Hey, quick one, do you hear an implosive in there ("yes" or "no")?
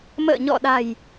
yes